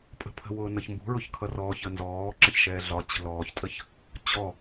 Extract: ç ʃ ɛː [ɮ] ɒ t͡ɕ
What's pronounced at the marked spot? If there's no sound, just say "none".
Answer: ɮ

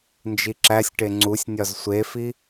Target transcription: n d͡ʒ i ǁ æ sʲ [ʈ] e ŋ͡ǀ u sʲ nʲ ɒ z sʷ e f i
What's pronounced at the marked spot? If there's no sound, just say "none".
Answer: ʈ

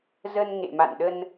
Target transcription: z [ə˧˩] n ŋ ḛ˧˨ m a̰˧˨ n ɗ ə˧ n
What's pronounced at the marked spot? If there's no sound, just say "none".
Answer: ə˧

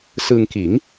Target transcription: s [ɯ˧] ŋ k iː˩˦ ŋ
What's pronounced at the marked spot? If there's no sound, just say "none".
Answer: ɯ˧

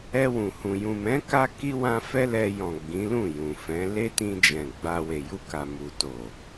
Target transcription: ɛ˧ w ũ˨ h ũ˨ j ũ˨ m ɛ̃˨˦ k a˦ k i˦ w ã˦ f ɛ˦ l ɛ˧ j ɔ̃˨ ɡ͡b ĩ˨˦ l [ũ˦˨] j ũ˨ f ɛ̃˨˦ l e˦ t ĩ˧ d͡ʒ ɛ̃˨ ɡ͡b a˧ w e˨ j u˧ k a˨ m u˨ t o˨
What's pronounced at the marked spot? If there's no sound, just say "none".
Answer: ũ˦˨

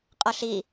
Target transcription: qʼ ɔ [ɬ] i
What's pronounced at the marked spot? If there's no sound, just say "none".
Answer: ɬ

